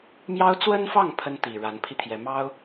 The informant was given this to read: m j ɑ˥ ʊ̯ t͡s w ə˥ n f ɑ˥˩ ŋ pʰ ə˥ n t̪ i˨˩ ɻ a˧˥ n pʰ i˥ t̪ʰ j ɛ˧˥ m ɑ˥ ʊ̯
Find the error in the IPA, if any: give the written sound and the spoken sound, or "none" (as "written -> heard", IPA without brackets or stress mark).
none